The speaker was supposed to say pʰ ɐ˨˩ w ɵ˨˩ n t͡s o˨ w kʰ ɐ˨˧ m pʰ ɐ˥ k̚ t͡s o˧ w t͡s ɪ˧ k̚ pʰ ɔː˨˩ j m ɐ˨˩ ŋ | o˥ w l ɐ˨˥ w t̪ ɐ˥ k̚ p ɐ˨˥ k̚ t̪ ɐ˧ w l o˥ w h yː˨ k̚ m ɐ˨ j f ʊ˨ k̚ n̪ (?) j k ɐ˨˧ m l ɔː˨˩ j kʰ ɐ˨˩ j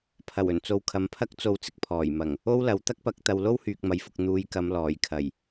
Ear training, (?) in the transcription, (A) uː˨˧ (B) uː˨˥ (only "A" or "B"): A